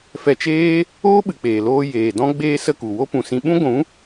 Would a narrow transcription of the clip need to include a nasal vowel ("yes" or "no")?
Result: yes